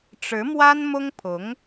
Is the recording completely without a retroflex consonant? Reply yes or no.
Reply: no